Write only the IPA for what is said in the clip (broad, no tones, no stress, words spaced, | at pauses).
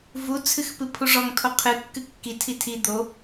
vu t͡sʰɨxpɨpʰuʐɔŋ tʰoqʰɨkːɨ kːitʰi tʰi d̪o